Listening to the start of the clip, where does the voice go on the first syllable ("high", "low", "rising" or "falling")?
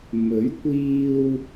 rising